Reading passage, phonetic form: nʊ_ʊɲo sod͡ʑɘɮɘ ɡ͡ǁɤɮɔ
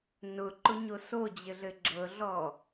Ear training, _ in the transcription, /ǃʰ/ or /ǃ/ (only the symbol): ǃ